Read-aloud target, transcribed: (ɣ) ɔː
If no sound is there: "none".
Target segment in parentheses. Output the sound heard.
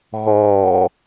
ɣ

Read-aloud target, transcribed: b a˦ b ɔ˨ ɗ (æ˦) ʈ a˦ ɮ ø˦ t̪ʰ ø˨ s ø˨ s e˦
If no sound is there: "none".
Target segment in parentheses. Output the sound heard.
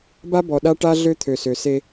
a˦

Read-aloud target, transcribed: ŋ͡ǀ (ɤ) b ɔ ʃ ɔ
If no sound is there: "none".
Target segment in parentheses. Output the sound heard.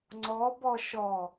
ɔ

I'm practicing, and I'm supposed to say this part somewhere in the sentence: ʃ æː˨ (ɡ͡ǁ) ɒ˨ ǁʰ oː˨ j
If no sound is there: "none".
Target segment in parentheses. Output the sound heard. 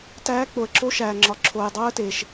ŋ͡ǁ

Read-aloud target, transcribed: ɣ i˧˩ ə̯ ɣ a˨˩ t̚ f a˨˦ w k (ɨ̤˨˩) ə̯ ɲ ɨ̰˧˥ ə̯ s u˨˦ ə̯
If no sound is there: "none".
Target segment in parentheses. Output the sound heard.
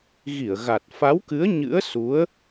ɨ˨˦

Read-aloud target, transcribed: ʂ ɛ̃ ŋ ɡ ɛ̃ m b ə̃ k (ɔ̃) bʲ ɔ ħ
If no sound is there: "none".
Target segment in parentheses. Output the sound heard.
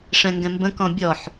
ɔ̃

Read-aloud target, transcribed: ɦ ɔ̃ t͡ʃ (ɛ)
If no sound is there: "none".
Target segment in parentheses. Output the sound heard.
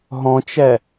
ɛ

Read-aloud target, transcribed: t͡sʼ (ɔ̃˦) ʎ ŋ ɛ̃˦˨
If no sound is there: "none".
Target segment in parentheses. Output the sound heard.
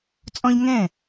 ɔ̃˦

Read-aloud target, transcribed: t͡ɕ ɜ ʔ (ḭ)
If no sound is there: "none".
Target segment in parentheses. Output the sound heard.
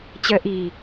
i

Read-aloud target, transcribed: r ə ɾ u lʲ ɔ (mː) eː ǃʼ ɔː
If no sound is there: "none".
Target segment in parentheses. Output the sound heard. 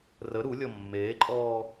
mː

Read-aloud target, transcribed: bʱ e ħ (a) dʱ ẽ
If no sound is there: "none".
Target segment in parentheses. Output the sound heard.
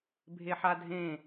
a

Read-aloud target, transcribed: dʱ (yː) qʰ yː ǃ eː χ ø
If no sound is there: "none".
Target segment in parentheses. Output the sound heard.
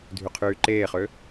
y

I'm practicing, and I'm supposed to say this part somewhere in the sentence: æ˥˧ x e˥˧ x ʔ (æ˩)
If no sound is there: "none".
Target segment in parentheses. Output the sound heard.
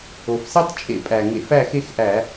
æ˧˩˧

